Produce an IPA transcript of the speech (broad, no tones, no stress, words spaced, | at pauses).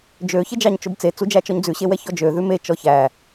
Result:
d͡ʒø çed͡ʒɑɲt͡ʃobt͡se t͡sud͡ʒæt͡ʃɔɲd͡zʉ ɕewɛçɔd͡ʒø ðʉme t͡ʃɔçæ